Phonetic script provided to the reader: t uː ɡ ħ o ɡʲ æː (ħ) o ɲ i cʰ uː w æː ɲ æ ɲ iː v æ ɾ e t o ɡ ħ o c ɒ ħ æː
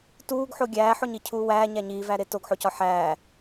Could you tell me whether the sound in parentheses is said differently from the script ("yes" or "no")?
no